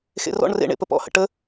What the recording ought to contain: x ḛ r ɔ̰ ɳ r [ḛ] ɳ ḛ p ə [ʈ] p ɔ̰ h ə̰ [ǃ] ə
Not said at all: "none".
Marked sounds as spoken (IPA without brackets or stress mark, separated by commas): ḛ, none, ʈ